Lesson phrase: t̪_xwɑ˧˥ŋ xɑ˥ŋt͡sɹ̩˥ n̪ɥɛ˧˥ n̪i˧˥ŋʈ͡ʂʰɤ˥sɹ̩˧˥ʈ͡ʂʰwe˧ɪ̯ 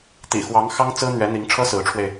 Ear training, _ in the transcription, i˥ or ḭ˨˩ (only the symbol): ḭ˨˩